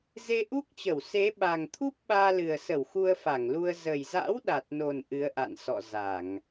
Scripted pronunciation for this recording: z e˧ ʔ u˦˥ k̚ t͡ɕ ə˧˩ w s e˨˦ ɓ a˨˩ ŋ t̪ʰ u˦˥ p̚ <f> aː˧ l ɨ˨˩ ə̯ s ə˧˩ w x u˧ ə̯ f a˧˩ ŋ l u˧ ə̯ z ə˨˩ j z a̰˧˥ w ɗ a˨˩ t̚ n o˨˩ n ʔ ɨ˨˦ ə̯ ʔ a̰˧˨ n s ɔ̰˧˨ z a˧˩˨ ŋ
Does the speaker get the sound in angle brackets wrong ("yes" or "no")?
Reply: yes